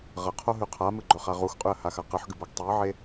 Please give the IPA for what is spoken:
ʁɐqʰoɦʉ qʰamɨɡ͡ǃɵχa ʁuxqʼʉə̯haxa qɨħɡɨboɡ tˤiə̯ʕe

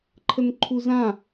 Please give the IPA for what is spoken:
ǃʰənǃʰuzã

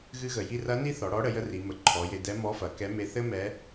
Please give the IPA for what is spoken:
ɣɨ˧ɣə˩ji˧rɐ˧˥ ni˥ θɔ˩˧ɽɔ˧˥ɽə˩˧ jə˥ri˩˧mə˩˧ ǃʰɔ˩˧je˧ dɛ˧˥ mɔ˧˥fɐ˩˧ kɛ˧˥ me˧θɘ˥ mɛ˧˥

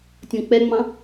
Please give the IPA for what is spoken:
tʲɔ̃k͡pɛŋ͡mɑ̃

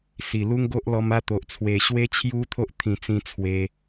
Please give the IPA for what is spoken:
si˨˩lu˦ŋɡo˦ʔ lɔ˧ma˦t̪o˨ʔ t͡sʰwe˨˩ɕwe˦ t͡ɕʰju˦t̪ʰo˦ʔt̪ʰĩ˨˩t͡sĩ˧ t͡sʰwe˧

